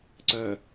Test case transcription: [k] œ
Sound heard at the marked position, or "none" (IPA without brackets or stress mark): ǀ